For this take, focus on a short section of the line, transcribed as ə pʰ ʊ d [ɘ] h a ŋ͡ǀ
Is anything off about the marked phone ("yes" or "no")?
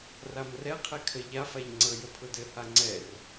no